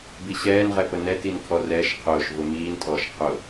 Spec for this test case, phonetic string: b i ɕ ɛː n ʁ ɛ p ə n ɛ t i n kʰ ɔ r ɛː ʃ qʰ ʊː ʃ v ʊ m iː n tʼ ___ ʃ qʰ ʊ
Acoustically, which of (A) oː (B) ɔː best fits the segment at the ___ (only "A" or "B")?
B